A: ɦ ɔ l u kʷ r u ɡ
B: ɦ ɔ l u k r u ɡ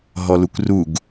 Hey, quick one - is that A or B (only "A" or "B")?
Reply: A